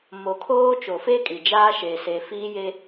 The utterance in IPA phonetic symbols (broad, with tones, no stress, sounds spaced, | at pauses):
m o˨ kʰ oː˦ t͡ʃ o˨ f e˦ kʼ i˨ d͡ʒ aː˦ ʃ eː˨ s e˨ f iː˦ j e˦